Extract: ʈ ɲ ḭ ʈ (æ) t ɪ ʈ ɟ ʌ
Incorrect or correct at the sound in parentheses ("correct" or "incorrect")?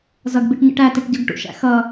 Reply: correct